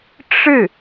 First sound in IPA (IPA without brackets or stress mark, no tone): ʈ͡ʂ